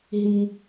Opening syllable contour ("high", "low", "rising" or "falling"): low